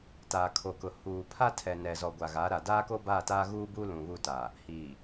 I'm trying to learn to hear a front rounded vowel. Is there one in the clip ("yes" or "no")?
no